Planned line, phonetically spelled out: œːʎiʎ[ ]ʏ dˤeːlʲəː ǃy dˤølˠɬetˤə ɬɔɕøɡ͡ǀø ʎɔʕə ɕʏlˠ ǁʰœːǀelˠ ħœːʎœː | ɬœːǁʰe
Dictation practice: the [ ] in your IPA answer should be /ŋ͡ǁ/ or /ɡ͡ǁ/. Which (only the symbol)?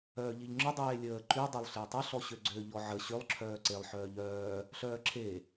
ŋ͡ǁ